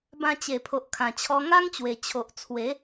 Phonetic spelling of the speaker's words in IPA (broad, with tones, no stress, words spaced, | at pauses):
bã˧t͡ɕe˨˩pʰo˨ʔ kʰã˨˩t͡ɕʰɔ˧ŋa˦ŋt͡ɕwe˨˩ t͡ɕʰo˨ʔt͡sʰwe˨˦